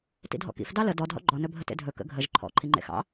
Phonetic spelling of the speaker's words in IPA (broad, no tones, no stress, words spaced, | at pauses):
tḭdʱɔ̰kḭf dɑlə dɔd ɦɔ̰ɡ͡ǃɔ nɵbʱətḛdʱɵ kə̰ɡʱəʒ ǃʰɔ̰ ǃʰiŋ͡ǃḛxɑ̰